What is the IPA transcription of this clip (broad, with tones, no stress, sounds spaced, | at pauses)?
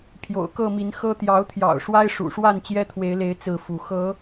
pʰ j o̰˨˩ ʊ̯ k ɤ˥˨ m i˨˦ n x ɤ˦ t̪ j ɑ˨˦ ʊ̯ t̪ʰ j ɑ̰˨˩ ʊ̯ ʂ w a˦ ɪ̯ ʂ ṵ˨˩ ʂ w a˥˨ n t͡ɕ j ɛ˦ t̪ʰ w e˨˦ ɪ̯ l e˨˦ ɪ̯ t͡s ɹ̩˥˨ f u˨˦ x ɤ˨˦